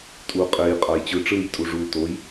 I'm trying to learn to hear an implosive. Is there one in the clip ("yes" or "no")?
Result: no